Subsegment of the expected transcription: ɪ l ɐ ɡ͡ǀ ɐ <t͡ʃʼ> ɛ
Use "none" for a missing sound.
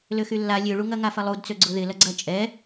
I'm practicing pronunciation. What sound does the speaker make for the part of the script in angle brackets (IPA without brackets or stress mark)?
t͡ʃʼ